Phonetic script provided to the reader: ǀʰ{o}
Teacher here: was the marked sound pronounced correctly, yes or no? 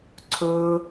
no